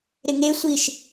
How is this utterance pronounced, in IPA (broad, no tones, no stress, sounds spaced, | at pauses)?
ɾ ɪ ŋ e sʷ i ʃ